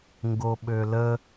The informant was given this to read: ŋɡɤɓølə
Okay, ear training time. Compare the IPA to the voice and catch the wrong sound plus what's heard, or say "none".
ɤ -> o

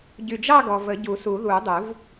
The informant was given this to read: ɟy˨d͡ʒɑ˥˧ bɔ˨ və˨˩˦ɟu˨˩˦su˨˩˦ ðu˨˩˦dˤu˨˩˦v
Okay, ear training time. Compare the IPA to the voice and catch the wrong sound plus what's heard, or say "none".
b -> ɡ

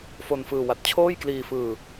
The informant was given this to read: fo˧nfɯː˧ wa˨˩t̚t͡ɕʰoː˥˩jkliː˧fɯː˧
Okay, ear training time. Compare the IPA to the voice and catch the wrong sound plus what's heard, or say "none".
none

